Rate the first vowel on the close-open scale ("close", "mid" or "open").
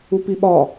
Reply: close